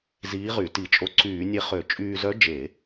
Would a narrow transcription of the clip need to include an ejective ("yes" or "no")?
yes